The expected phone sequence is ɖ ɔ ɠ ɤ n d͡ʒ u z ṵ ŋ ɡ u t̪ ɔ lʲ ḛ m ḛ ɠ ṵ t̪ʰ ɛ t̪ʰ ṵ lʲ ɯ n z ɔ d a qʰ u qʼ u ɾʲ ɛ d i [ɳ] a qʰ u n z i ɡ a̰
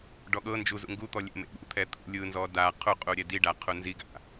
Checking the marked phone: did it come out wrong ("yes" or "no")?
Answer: yes